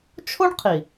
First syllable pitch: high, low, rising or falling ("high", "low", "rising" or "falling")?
high